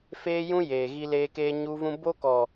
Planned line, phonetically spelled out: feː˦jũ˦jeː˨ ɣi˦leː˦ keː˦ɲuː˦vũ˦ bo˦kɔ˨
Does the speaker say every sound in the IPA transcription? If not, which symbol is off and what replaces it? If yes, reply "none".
none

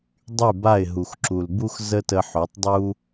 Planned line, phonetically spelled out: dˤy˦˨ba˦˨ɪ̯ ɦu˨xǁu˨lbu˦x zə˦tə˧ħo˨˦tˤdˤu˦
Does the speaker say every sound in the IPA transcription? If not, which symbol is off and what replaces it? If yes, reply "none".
none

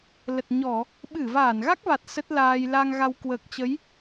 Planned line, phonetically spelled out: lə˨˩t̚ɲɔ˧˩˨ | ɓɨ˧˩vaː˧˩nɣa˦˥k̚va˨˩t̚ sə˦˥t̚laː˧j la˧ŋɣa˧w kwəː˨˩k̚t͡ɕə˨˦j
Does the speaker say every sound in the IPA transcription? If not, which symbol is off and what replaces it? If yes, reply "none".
none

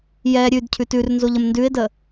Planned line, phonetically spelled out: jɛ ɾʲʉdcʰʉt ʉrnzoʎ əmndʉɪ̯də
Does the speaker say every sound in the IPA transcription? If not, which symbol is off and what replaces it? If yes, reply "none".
none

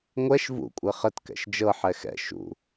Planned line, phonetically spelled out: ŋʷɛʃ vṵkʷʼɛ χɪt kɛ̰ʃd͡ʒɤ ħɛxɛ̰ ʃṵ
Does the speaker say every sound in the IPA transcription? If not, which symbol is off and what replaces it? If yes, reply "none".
ɪ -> ə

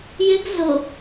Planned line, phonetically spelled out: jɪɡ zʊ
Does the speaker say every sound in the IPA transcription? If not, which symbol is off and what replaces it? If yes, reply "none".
none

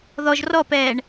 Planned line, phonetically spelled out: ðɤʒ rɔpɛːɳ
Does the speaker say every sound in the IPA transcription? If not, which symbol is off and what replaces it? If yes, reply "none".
ɤ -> ɔ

